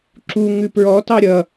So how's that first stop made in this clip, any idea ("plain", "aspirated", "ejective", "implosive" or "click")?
click